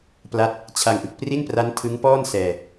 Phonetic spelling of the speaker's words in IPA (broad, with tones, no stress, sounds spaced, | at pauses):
p l a˦˥ t̚ | t͡ɕʰ a˧ ŋ ʔ ɯ˨˩ k̚ p r i˥˩ n p r a˦˥ n tʰ ɯ˦˥ ŋ p ɔː˥˩ n s ɛː˧